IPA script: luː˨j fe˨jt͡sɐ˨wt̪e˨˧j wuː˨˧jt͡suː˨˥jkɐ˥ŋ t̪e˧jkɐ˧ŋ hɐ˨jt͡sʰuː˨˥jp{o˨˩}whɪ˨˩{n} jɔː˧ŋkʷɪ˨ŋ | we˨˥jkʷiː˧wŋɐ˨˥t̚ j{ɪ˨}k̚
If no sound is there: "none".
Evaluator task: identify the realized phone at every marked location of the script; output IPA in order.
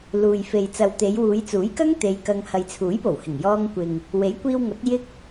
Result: o˨˩, ŋ, ɪ˥

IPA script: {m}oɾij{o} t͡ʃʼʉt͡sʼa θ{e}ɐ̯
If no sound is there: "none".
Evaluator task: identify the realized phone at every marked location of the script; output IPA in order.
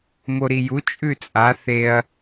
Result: m, u, e

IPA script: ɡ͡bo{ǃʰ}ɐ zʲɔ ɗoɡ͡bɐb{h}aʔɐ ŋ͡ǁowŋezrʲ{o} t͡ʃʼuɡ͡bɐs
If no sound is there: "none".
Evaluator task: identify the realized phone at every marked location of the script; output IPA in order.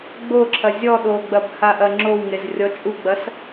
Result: ǁʰ, h, ɔ

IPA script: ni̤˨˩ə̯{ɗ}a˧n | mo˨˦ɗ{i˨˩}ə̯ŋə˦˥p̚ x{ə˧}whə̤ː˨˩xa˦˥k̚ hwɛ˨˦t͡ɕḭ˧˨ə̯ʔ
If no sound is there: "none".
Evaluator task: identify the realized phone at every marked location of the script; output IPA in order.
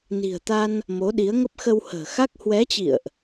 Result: t̪, i˨˦, ə˧

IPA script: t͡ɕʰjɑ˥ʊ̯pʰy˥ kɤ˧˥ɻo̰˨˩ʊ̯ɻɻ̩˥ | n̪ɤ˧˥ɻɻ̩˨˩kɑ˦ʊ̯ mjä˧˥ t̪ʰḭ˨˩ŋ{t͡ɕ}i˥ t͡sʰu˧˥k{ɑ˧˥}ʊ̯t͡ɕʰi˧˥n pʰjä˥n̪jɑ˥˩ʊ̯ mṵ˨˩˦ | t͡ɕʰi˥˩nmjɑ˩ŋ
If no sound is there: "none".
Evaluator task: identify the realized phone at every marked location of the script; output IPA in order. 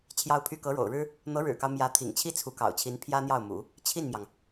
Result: t͡ɕʰ, ɑ̰˨˩

